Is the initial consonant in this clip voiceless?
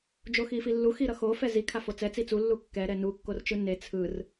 no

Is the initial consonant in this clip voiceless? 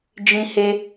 no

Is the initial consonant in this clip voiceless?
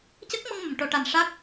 yes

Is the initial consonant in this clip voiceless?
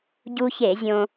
no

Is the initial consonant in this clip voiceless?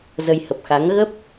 no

